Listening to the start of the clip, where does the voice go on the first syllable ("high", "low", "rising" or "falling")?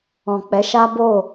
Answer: low